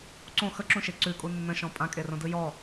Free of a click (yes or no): no